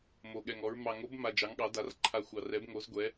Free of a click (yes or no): no